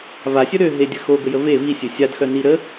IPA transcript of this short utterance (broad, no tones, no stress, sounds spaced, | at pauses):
v a sʲ œ ɾ ø ɦ e dʲ ə x o ɡ ə j ə v e v i sʲ ø sʲ a d x œ n i ɾ ə